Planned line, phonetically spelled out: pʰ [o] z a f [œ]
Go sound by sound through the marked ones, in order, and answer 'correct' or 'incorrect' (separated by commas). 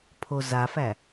correct, incorrect